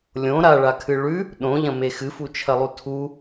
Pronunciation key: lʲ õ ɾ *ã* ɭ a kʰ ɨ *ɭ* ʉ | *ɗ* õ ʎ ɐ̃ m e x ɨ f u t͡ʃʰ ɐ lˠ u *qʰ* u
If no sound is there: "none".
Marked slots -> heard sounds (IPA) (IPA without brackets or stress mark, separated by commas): a, ɭ, ɗ, tʰ